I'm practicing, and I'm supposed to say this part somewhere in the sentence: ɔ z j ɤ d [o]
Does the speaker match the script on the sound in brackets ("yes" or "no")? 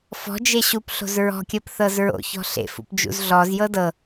no